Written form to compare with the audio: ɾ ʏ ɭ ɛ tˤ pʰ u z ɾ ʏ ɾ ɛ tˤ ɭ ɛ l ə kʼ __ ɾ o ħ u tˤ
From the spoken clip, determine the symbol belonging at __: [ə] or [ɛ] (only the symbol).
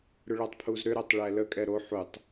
ɛ